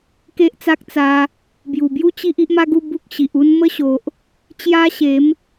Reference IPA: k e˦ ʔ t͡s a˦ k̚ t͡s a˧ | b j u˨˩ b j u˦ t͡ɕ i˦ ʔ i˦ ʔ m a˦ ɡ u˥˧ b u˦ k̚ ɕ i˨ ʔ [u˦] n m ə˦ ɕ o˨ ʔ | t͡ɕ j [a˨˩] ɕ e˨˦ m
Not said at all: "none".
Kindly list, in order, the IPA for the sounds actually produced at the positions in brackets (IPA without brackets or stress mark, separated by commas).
u˦, a˦